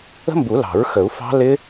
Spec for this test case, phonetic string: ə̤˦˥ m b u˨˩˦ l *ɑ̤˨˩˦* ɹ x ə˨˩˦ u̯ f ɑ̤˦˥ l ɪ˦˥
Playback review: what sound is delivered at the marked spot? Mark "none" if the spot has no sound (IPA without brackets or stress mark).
ɑ̤˨˩˦